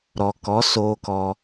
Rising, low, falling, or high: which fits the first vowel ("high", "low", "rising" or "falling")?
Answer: low